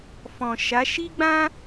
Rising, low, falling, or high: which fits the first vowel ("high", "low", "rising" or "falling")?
low